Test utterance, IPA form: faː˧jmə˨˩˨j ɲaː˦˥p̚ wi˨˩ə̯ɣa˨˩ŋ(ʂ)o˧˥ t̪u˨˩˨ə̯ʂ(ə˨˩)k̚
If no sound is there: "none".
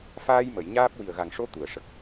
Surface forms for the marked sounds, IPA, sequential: ʂ, ə˨˩

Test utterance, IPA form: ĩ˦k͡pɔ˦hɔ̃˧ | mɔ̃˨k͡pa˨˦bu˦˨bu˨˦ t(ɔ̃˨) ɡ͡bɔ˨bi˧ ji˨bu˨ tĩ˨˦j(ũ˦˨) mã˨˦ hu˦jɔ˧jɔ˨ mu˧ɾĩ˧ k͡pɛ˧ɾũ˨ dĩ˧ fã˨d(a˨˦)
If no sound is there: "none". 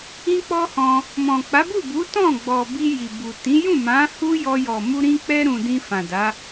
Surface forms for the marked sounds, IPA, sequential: ɔ̃˦˨, ũ˦˨, a˨˦

